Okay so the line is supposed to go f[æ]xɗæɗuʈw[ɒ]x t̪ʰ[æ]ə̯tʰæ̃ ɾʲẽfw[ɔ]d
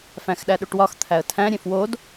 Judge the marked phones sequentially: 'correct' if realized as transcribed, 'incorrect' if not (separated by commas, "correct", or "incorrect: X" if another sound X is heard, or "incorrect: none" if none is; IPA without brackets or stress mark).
incorrect: æ̃, correct, correct, incorrect: o